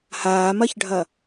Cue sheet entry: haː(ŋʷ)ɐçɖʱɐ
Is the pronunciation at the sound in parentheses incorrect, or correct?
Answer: incorrect